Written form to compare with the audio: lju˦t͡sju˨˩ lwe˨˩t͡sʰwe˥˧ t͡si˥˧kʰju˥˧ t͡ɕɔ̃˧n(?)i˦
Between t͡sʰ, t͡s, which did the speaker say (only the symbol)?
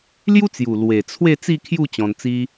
t͡s